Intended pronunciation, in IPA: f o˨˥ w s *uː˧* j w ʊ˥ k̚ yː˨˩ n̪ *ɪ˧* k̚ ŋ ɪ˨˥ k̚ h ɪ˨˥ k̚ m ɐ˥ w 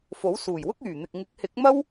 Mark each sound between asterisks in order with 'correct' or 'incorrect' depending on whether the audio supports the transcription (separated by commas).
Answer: incorrect, incorrect